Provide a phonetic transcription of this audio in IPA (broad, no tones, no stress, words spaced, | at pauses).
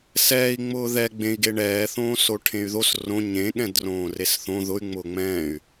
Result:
sɛːi̯ ŋ͡mʊːðɛ ɡ͡bẽi̯ɡe ɳɛːθõːso ʈʰẽy̯ðos rõ ɲẽ ɠɛ̃drõːresθõ ðʊy̯ ŋ͡mʊːŋ͡mɛ̃ːy̯